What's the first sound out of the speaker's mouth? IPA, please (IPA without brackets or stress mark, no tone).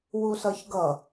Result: w